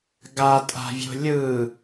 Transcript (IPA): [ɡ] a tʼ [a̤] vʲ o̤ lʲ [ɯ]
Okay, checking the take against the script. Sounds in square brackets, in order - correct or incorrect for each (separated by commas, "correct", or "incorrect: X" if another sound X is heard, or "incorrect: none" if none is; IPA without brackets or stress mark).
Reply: correct, correct, correct